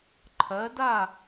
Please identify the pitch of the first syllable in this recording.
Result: rising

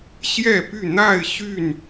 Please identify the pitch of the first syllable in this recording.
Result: falling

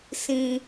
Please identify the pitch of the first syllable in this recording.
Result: high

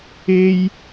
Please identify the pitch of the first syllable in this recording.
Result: high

